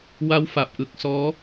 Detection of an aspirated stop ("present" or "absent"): absent